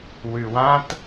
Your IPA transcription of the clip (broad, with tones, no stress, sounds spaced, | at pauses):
w ʉ˩ w ã˧ t